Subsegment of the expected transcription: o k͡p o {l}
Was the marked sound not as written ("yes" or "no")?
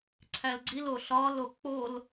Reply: no